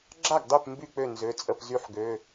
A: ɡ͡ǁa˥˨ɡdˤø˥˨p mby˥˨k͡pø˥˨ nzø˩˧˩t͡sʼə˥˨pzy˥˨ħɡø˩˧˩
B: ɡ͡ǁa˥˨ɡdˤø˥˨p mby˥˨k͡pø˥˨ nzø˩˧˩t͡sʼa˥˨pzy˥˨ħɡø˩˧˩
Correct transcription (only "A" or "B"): A